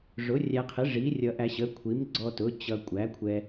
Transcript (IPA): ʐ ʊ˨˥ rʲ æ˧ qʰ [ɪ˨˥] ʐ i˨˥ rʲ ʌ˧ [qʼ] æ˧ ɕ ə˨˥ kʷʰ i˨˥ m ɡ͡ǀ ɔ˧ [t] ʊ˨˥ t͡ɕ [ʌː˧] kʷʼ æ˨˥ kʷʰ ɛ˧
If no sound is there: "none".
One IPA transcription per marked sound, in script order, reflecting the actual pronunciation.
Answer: ɪ˨˥, ʔ, t, ʌ˧

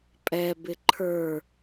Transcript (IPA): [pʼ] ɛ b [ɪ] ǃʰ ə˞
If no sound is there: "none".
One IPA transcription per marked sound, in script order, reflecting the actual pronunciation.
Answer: pʼ, ɪ

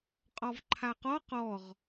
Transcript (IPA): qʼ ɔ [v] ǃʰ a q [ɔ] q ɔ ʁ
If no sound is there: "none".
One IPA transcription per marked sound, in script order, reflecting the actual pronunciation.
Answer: v, ɔ

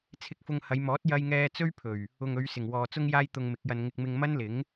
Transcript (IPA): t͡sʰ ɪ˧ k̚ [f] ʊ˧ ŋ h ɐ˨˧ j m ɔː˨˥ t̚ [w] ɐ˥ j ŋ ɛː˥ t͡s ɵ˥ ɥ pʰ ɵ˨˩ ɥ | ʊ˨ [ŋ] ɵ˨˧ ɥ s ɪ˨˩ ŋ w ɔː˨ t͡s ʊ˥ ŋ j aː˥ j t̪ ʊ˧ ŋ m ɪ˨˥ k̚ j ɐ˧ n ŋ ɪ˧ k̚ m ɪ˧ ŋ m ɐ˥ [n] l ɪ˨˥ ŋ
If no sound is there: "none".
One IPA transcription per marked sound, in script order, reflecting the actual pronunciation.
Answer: f, j, ŋ, n

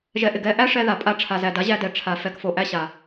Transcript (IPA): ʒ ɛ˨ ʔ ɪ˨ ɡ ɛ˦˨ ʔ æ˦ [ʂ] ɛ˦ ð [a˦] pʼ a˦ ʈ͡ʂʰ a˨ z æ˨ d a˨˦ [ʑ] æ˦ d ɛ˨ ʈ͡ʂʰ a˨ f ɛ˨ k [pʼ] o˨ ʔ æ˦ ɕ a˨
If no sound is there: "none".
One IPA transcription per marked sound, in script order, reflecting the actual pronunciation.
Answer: ʂ, a˨, ʑ, f

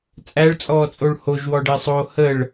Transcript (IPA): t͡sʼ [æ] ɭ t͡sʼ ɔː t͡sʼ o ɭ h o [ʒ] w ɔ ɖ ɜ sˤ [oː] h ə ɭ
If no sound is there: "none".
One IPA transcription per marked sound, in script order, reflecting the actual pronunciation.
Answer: æ, ʒ, oː

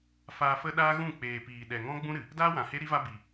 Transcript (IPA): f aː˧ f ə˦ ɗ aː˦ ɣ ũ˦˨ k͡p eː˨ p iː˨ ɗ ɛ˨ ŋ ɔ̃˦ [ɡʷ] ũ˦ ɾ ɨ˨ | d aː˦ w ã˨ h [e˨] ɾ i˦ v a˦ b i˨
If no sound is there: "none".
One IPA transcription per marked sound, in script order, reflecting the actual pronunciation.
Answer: ɡ͡b, e˦

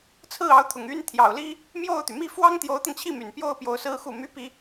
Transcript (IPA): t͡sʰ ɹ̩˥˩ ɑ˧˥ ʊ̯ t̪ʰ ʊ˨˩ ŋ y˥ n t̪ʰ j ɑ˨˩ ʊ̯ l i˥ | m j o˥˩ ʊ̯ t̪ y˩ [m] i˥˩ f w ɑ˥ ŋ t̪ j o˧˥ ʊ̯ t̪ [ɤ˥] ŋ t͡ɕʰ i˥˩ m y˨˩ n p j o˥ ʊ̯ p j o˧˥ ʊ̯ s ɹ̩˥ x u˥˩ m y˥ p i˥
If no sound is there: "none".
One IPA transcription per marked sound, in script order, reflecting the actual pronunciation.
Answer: m, ɤ˧

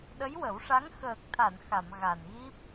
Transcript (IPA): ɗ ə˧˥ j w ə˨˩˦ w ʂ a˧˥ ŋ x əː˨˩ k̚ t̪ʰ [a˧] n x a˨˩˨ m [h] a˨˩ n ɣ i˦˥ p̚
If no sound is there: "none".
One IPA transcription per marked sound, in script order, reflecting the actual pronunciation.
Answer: a˨˩˨, ɣ

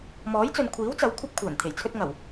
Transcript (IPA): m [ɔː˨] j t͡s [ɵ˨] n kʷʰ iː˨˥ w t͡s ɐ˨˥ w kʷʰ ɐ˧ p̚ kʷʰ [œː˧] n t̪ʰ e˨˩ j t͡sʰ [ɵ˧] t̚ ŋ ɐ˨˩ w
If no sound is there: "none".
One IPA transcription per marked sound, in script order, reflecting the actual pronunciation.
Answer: ɔː˨˥, ɵ˨, œː˨˩, ɵ˧

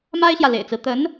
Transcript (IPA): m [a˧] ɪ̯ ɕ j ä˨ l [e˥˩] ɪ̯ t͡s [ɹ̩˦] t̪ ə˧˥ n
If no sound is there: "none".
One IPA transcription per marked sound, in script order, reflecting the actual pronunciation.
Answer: a˥, ḛ˨˩, ɹ̩˦

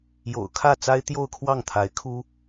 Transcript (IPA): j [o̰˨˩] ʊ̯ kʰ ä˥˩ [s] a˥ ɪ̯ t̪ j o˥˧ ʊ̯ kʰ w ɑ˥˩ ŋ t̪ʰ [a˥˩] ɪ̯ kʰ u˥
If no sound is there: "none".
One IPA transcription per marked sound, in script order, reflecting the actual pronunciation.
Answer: o̰˨˩, t͡s, a˧˥

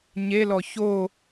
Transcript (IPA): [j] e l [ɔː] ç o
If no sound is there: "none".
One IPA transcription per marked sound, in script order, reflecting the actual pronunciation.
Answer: ɲ, ɔ

